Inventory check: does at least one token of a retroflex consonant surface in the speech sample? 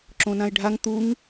yes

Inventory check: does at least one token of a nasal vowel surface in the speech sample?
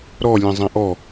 yes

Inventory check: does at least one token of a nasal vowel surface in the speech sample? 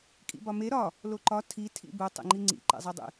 no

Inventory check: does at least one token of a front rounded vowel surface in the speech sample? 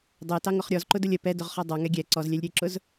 no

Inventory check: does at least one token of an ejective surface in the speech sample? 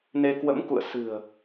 no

